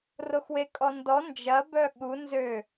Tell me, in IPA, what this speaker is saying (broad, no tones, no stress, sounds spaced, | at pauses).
r o x w e kʼ ɔ n d ɔ n d͡ʒ ɐ b œ ɠ u n z ø